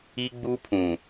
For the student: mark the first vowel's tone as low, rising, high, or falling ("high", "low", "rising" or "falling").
high